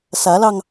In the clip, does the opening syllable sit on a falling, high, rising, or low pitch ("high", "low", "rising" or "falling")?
rising